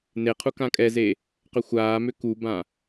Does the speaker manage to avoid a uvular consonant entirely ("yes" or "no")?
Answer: no